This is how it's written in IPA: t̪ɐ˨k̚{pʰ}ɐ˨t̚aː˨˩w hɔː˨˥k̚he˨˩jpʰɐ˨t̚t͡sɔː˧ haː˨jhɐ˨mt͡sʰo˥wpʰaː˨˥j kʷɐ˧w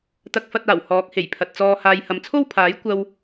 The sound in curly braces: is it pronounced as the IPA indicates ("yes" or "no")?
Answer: no